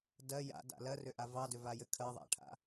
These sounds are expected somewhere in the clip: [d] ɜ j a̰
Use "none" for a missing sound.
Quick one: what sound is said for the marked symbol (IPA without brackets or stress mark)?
d